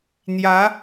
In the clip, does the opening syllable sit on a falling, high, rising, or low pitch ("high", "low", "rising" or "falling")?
rising